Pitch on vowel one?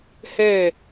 falling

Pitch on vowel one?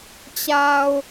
low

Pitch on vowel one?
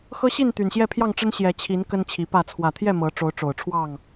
high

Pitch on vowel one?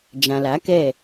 low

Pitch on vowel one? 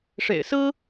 low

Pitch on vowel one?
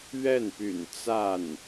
falling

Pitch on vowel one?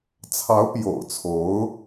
rising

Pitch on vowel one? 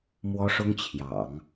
high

